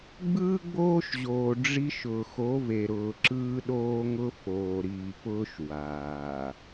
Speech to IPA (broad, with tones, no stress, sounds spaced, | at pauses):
ɡ͡b ɯː˦ ɡ͡b oː˦ ʃ ʑ oː˨ ɖ͡ʐ i˦ ʃ ʊː˨ x o˨˦ v e˨ ɾ ʊː˨ ǁ ɯː˦ ɗ oː˦ ŋ ʊ˦ f oː˨ ɾ iː˨ p ʊː˦ ʃ w aː˨